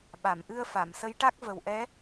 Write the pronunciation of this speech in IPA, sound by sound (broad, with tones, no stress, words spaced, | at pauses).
ɓa˨˩˨mʔɨ˧ə̯ fa˨˩˨m sə˧˥jʈa˦˥k̚ və˨˩wʔɛ˧˥